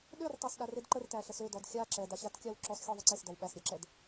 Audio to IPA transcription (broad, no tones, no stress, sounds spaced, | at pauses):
ɗ ø r tˤ æ s ɗ a r e d ǃ ə r t æ ɬ ə s ø d ɔ d xʲ a ǁ ɛ d a ɕ a t kʲ a w ǁ ɔ s xʲ ɔ ðˤ ə ǀ e s d ɔ w ɓ æ s ɾʲ ɛ ǁ ɛ d